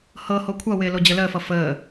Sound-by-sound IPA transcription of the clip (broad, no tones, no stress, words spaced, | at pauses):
hɤho kʷʰʌwɪː lod͡ʑələːfʌ fəː